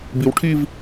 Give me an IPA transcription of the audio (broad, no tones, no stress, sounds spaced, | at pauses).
b i w ʈʰ i v